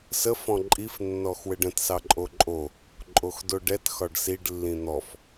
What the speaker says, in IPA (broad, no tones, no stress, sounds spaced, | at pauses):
s ə f ɔ̃ ǃʼ i f nː ɔ x w ɘ ɖ ə̃ t s ɑ ǃʼ o ǃʼ o | ǃʼ o x d o ɖ ɛ t x ɒ ɖ s i ɖ lː ĩ n̪ ɔ f